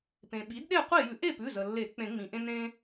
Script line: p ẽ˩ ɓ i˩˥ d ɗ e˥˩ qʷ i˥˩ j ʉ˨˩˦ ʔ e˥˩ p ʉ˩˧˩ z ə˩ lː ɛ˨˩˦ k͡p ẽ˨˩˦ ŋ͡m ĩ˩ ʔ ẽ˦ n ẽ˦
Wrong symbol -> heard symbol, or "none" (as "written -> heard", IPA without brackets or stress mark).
ɛ˨˩˦ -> e˨˩˦